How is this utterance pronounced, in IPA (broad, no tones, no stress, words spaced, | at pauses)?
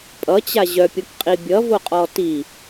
pʼʌt͡ɕa ʑœpʲokqʼi bʲʌvoqʼɔ ti